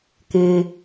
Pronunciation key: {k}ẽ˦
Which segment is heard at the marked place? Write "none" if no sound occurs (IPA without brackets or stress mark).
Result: k